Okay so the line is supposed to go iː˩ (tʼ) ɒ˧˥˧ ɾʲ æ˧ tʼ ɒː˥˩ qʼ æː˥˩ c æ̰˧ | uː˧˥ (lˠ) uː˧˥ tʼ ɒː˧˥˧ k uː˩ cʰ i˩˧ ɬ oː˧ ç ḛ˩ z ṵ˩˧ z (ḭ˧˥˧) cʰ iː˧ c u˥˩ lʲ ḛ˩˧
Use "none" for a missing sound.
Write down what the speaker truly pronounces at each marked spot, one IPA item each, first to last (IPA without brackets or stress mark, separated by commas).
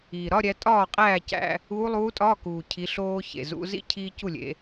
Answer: ɾ, lˠ, ḭ˧˥˧